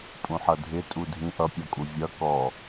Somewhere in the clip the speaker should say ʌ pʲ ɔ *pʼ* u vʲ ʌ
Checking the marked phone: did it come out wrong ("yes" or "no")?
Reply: yes